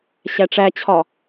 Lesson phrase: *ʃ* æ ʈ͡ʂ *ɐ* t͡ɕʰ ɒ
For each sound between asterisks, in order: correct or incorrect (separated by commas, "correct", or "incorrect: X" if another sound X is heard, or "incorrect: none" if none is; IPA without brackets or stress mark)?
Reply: incorrect: ɕ, incorrect: æ